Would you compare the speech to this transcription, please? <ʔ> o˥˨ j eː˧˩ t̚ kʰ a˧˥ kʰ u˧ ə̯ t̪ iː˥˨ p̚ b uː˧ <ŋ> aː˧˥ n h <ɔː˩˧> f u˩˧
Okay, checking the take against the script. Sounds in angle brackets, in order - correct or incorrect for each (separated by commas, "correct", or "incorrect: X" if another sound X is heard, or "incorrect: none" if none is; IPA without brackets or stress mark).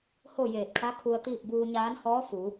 incorrect: h, incorrect: ɲ, incorrect: ɔː˧˥